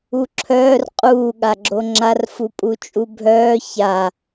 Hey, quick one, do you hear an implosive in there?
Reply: yes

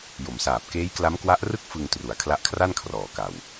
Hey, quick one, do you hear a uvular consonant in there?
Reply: no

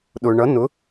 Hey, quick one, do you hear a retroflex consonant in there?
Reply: yes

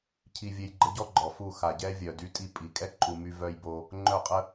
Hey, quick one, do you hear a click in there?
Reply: yes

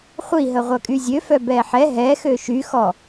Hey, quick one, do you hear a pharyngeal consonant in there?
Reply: yes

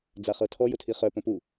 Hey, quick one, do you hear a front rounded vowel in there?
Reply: yes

